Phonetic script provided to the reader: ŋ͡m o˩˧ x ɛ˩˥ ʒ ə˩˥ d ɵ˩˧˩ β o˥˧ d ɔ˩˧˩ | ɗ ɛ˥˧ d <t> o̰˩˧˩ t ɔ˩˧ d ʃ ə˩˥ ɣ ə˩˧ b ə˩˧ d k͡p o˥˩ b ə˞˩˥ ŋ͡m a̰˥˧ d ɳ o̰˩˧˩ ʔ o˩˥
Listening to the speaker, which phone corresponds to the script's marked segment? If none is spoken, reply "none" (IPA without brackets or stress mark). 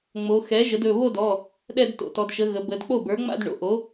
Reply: t